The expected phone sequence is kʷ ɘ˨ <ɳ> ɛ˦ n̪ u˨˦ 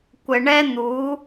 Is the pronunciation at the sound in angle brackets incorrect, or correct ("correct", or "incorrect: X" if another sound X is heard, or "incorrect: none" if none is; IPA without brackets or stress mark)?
correct